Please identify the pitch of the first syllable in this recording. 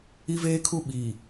high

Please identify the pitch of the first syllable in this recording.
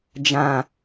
low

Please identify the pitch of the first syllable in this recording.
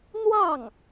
falling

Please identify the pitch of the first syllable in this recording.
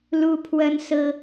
high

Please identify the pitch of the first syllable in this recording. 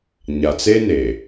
low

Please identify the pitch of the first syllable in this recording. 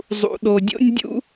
low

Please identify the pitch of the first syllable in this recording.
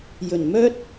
low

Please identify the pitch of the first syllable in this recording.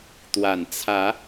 low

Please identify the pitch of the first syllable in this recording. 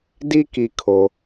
high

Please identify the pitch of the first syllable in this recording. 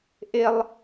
high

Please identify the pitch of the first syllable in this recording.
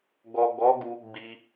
low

